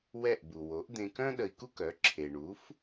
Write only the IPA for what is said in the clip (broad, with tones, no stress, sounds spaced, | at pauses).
w ɛ˥˩ ʔ b u˩ w o˩˥ ʔ d̪ ẽ˧ k œ̃˥ ɗ ə˧ i̯ k u˥ k œ˩˥ ǁʰ e˩ ɳ u˩˥ f